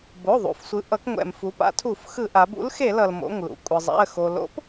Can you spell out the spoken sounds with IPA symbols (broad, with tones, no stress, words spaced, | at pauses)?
bo˩˧˩ðˤṵ˩fsʷɯ˩˧ ʔʌ˩˧kŋʷɛ̰˩m fu˩˧pa̰˩˧ tʰu˧˩˧fxɯ˧˩˧ʔa˩˧b ṵ˨˥lxe˧˩˧lʌ˩l mo̰˩˧˩ŋlṵ˩kʷʼɯ˩zˤa̰˩˧˩ə̯ xo˩lo̰˨˥p